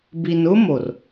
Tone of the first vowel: low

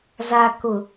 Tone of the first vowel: low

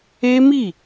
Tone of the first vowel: high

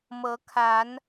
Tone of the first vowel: rising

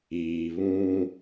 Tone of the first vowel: low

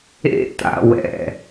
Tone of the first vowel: high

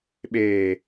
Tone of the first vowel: low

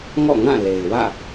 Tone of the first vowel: falling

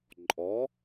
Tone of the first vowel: rising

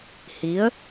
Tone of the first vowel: rising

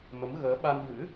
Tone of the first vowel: rising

